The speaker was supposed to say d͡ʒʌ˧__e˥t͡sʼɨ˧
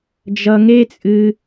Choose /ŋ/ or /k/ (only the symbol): ŋ